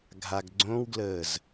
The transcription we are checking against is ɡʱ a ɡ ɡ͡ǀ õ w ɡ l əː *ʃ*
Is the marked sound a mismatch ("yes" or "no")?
yes